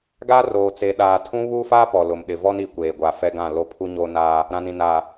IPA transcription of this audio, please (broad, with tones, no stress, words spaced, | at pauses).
ɡaː˦roː˨t͡se˨ɗaː˨ tʰũ˦ βu˦faː˦ pɔ˨lʊ˨mɗɪ˨vɔ˦n i˨kʷeː˨ ɡʷa˨ fɛ˦ɡã˦˨ lo˦pʰu˦ɲo˦ naː˦ | ɾã˨nĩ˨ naː˨